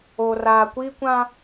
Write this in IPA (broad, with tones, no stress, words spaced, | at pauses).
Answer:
oː˨raː˨kʷiː˦ kʷã˦